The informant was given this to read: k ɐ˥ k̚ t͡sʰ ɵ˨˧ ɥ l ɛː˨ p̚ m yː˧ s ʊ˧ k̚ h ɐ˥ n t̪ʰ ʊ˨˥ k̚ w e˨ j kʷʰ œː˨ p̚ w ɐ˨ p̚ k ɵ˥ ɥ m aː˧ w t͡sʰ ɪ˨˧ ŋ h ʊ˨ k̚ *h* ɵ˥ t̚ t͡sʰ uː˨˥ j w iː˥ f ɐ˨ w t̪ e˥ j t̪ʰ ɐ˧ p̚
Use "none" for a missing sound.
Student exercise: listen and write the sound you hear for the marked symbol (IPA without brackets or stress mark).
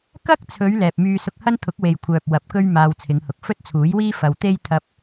f